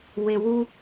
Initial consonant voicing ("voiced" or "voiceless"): voiced